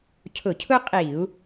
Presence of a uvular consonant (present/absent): present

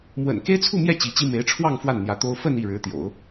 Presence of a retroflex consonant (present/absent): present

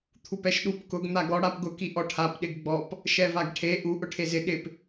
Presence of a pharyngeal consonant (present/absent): absent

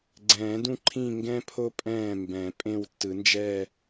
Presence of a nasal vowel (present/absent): present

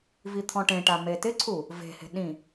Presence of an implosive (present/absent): present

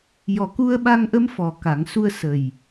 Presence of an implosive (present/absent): present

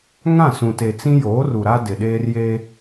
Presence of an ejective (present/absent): absent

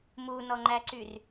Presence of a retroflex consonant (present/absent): absent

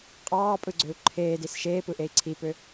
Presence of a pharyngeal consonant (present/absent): absent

